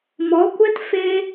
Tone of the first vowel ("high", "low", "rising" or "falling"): rising